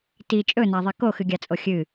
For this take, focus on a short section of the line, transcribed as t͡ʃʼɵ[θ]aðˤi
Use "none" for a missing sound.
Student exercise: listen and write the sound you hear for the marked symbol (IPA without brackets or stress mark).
n